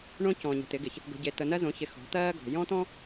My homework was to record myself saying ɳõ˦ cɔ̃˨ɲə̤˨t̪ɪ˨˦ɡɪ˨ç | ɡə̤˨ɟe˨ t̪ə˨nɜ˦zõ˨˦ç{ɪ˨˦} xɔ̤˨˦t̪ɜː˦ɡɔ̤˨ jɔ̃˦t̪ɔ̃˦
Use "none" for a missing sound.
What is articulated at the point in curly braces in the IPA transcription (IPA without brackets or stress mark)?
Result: ɪ˨˦